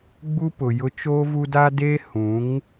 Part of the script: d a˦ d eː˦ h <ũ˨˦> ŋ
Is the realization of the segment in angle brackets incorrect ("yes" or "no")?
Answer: no